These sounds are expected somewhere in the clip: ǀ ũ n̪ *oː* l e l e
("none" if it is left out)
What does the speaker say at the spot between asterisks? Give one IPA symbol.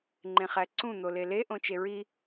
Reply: o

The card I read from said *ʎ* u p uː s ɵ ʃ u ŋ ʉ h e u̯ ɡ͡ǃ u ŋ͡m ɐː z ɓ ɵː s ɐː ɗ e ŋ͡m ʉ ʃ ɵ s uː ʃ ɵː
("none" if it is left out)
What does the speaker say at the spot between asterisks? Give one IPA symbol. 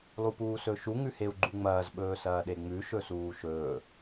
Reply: lˠ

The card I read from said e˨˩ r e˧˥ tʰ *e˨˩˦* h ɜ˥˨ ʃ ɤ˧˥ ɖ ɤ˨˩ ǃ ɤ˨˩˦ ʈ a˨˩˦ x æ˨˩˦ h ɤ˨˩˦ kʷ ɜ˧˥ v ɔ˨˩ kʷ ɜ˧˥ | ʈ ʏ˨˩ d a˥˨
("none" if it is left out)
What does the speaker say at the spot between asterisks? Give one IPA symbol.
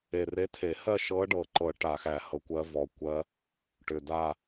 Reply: e˨˩˦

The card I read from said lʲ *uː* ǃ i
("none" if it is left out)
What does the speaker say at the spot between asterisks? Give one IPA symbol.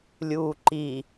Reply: uː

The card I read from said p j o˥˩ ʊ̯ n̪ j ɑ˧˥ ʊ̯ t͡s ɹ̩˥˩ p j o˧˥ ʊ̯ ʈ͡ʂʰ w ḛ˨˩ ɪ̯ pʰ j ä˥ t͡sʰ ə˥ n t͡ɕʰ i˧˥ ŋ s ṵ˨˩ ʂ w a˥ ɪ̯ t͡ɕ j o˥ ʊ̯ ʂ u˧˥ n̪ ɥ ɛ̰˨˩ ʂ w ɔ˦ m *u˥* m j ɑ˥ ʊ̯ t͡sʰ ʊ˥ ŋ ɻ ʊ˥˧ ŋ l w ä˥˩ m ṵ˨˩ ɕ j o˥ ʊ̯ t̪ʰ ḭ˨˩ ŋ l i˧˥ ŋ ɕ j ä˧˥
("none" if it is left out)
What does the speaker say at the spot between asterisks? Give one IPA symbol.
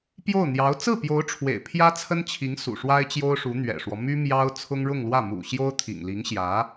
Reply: y˥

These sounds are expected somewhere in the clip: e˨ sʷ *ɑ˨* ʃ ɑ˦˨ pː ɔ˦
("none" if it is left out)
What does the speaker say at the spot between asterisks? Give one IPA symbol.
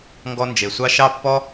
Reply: ɑ˦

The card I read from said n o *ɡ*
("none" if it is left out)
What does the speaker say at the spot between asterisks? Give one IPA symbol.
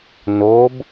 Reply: b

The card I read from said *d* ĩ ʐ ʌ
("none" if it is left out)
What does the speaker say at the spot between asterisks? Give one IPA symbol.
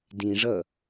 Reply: d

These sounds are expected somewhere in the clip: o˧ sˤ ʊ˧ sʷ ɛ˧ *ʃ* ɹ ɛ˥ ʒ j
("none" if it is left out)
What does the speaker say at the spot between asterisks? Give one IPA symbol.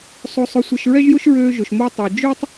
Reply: ʃ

